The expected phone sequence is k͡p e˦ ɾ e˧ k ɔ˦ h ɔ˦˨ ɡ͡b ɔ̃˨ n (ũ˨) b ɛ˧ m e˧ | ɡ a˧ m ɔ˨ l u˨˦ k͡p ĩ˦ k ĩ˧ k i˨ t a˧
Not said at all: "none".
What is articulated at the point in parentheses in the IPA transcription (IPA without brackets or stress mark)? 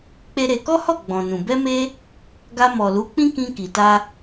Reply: ũ˨